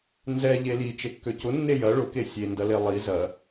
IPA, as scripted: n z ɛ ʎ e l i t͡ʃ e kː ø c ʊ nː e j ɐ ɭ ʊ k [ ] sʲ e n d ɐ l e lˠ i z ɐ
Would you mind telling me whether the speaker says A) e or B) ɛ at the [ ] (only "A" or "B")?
A